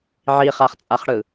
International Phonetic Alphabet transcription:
ʕiχaχt͡sʼaχɽɯ

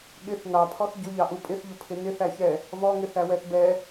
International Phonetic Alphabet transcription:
ɠɪθ nɑpʰɔθ ɟʊʎɑʔu pʼɪθʎʊpʰɪ nɪθæçɛ | vɔŋɪθæwɛθ bɛ

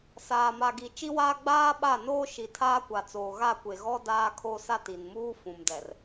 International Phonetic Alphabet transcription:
saː˨ma˨ɡi˨ t͡ʃi˦waː˦ ɡ͡baː˦ɓa˦˨ noː˦ ʃi˨˦tʰaː˦kʷa˨ t͡soː˨ɣa˦˨kʷe˨ ɣɔ˦ daː˦kʰo˦ sa˦ti˨nmuː˦ fũ˨mdɛ˨r

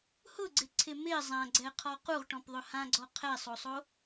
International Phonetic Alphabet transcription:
hʊɡ͡ǀɪǀʰɪ mɪ zˤãɡ͡ǀɛqʰɔ quʁʈɔ̃pðˤʊ hãɡ͡ǀɔ qʰɛsˤosˤo

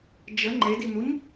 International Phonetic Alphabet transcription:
d͡ʒə ŋ͡ǃedinuɲ

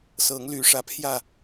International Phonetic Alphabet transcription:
sɤ˨˦ŋ ly˨˦ʂä˨˦ pʰjä˥˨

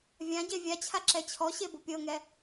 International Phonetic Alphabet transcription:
vʲãɟe vʲat͡ɕʰaǁɛ t͡ɕʰɔɕebo pʲɤŋɛ

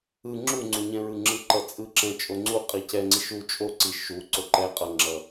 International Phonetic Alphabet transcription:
ɯ ŋ͡ǁuŋ͡ǀuɲɛ̃ɹɯ ŋ͡ǁɯǃʌt͡sʼɯǁɛ̃ t͡ʃʼoŋ͡ǀu qʼicɛŋ͡ǀi ʃu t͡ʃʼo ǀi ʃu ǀoǃɛ qʼʌŋ͡ǁʌ

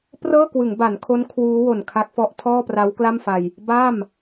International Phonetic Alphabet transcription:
prɤː˥˩kwɯ˩˦ŋba˩˦nkʰo˦˥n kʰwuː˦˥ wo˨˩nkʰa˦˥k̚fɔ˦˥ʔ tʰɔː˥˩pra˦˥wkla˥˩mfa˧j | ba˥˩m

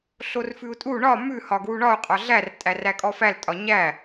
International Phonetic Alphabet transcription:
ɬorfʉu̯tʼu ɳɒ mʉ hɒɡwuɳɒu̯ qʼɒɮær tʼærækʼɔfæl tʼɒɲæ

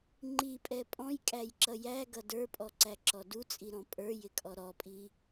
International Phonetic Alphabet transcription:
ŋ͡ǃipʼɛ pʼɔ̃jkʼæjǁʌ jæɡʌ də˞pʼɔǀæǁɔ dut͡sʼiɾɔ̃ pʼə˞jɪkʼɔ ɾɔpʼi

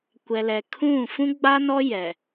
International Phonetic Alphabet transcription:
kʷɛ˨lɛ˨ kʰũ˦˨ fũ˦ɡ͡ba˦nɔ˦ jɛ˨

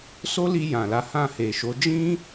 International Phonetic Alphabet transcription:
so˦li˧ jã˨la˨˦hã˦˨ he˨ʃo˨˦ d͡ʒĩ˦

